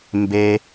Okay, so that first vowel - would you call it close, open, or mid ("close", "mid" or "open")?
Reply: mid